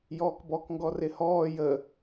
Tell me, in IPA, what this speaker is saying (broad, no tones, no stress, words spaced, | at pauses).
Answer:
jɔːkbɔkŋɡɔ rɪhɔː jə